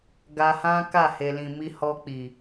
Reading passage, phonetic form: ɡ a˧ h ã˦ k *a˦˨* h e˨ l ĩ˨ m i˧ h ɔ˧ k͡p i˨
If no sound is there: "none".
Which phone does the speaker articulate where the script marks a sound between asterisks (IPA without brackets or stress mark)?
a˦˨